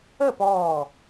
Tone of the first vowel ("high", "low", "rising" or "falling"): falling